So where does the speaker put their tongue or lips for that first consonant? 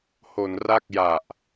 throat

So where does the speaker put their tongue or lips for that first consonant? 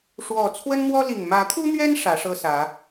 retroflex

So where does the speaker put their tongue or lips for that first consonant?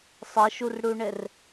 tongue tip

